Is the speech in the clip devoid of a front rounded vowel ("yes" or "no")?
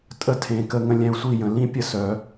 no